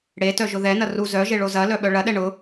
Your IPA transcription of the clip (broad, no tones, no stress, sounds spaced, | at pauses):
ɽ e t œ ʒ ʊ ð ɛ n ɐ r u z œ ʒ e ɭ o z ɐ l œ ɓ œ ɭ ɐ ɗ ɛ ɳ ʊ